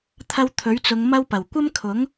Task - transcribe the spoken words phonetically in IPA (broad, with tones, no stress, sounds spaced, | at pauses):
t̪ʰ ɐ˧ w t̪ʰ ɵ˨˥ ɥ t͡s ʊ˨˧ ŋ m ɐ˥ w p ɐ˨˩ w kʷ ɐ˥ m kʰ ʊ˨˥ ŋ